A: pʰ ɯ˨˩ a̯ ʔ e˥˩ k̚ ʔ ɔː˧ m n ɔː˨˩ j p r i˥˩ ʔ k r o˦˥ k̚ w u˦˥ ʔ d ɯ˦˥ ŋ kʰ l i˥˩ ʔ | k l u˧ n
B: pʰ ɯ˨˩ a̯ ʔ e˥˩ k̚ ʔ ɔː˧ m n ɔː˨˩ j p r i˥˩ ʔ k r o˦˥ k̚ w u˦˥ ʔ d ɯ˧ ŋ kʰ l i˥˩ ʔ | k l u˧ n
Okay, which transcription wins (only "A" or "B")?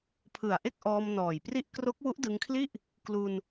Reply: B